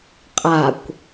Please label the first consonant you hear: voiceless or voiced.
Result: voiceless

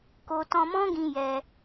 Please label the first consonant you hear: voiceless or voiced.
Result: voiceless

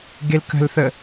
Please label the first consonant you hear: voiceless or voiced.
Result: voiced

